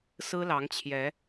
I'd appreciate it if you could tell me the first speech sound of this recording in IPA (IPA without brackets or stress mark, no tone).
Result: s